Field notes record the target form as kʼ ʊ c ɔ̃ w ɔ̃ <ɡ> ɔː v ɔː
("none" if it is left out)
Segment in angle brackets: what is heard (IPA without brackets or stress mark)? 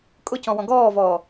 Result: ɡ